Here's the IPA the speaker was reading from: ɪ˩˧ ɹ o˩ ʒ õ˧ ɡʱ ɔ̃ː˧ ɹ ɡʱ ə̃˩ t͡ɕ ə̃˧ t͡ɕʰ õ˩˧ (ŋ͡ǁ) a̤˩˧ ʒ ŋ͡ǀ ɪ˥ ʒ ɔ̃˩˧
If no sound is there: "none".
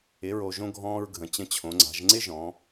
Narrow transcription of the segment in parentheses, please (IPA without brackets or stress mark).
ŋ͡ǀ